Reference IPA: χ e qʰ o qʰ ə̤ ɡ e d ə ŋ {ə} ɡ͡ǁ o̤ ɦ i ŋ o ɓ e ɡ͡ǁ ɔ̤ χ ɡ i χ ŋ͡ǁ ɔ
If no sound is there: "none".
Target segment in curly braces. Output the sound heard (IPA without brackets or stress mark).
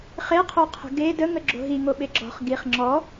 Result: ə